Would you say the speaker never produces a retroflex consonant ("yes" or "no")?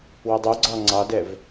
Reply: yes